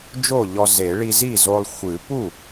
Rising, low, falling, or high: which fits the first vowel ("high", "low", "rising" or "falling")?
falling